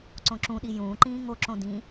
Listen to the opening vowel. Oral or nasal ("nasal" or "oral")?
nasal